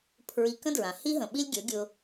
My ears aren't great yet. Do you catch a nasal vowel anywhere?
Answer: yes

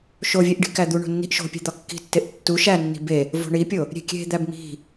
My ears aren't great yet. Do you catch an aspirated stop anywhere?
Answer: no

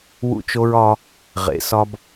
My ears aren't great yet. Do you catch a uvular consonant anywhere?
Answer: yes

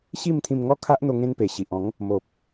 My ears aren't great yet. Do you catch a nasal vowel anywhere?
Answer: yes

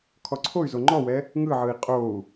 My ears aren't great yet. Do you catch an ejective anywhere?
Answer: yes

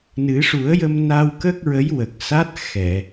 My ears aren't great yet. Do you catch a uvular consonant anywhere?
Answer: no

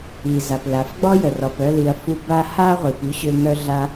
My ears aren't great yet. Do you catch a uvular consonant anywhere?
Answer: yes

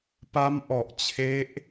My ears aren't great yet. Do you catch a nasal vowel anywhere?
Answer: no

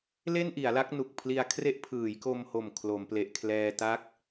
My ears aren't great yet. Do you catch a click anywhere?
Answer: no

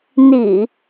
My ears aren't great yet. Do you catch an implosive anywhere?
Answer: no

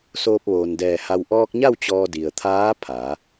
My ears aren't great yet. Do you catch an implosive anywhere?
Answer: no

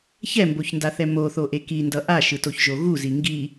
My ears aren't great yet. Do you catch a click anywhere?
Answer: no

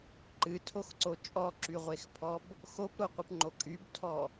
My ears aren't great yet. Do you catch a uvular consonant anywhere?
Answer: yes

